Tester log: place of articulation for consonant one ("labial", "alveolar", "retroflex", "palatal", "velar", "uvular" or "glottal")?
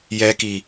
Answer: palatal